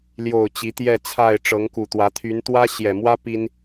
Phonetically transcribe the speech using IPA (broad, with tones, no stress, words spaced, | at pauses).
ljo˨˩ʊ̯ t͡ɕi˨˦t̪jɛ˥˨t͡sʰa˥˨ɪ̯ ʈ͡ʂɤ˨˦ŋku˨˩t̪wä˨˦ t̪ʰy˨˦nt̪wä˦ ɕjɛ˨˩mwä˦ pi˦n